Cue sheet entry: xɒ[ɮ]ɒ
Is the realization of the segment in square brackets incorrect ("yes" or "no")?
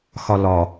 yes